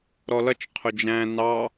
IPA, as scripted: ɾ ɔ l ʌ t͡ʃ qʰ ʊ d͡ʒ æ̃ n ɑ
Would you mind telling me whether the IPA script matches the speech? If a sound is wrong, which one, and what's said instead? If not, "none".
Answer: none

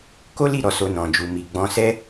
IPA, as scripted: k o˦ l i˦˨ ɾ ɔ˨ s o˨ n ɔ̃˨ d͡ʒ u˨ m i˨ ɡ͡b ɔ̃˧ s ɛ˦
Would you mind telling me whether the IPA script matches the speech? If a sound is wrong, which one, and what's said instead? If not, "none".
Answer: none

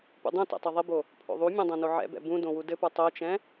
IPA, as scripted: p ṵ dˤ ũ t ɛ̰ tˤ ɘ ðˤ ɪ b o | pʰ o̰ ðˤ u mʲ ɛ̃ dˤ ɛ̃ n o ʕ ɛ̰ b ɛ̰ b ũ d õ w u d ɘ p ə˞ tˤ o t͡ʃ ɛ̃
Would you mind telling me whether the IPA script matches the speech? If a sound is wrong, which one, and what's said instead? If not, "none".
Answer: none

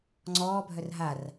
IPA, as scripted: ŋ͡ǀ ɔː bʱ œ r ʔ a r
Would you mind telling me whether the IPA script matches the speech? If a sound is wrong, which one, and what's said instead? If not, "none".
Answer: ʔ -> ɦ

